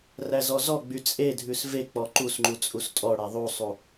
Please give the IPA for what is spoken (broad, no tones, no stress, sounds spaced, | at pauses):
r æ z ɔ z ɔ ɡ͡b y t͡sʼ e dʱ ʉ s v e k͡p ɔ ǃ u s ŋ͡ǃ u t͡sʼ u s tʼ ɔ ɽ æ ðˤ u sˤ u